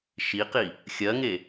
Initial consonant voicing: voiceless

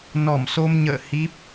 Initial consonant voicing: voiced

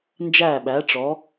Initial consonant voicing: voiced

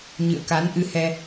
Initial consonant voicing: voiced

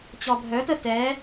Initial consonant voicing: voiceless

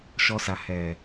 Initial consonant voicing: voiceless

